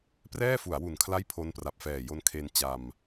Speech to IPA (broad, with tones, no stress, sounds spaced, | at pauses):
p r ɛː˥˩ f u˩˦ a̯ w u˨˩ n kʰ l a˥˩ j pʰ o˦˥ n p r a˨˩ p̚ f ɛː˨˩ j o˧ n kʰ e˧ n t͡ɕ a˧ m